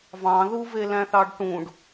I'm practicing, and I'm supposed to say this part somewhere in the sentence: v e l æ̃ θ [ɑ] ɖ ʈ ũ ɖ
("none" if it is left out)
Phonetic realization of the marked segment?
ɑ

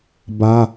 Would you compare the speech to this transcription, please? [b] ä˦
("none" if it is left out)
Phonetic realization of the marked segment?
b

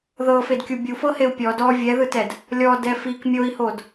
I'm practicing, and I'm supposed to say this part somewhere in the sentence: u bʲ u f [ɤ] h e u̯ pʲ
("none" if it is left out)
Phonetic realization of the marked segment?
ɤ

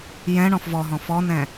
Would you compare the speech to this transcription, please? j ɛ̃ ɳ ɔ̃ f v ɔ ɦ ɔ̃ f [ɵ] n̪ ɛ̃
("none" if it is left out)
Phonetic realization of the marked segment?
ɔ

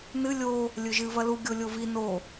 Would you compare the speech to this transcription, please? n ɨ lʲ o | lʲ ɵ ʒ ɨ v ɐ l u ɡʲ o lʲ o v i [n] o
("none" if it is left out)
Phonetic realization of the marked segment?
n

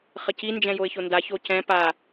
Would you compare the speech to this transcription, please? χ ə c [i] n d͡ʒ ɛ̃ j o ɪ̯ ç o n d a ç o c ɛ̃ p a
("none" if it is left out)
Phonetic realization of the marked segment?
i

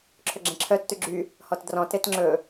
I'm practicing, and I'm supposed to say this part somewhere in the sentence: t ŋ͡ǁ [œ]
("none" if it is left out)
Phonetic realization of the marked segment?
ɵ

